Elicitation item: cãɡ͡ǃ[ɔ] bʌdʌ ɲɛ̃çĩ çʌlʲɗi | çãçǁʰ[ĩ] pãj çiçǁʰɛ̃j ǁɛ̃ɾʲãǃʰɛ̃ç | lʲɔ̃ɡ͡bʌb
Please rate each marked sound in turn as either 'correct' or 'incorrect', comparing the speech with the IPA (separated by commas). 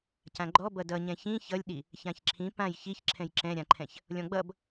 correct, correct